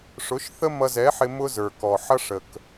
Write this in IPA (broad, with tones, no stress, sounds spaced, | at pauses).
ʂ ʊ˨˦ ʃ θ ə˦ m ʌ˧ z ɛ˨˦ ħ ɪ˧ m ʊ˦ z ə˞˨ k ɔ˨ ħ ʌ˦ ʂ ə˨ k